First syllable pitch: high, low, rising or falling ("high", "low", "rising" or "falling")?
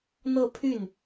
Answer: falling